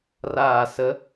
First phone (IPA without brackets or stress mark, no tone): r